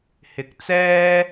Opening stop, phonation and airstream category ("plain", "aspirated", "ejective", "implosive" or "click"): plain